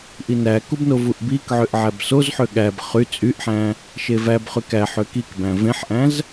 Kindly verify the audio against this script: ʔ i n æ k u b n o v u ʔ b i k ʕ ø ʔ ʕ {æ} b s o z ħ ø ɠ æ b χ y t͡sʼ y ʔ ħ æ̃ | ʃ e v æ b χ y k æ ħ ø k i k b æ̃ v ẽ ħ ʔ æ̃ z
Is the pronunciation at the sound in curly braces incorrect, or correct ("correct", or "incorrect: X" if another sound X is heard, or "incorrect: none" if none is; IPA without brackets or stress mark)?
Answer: correct